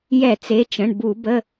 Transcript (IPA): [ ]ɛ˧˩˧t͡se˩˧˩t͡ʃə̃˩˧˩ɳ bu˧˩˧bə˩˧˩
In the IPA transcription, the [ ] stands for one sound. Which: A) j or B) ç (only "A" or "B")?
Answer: A